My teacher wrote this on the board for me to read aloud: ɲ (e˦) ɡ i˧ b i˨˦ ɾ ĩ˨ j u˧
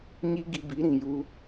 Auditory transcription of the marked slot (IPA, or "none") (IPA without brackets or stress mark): i˦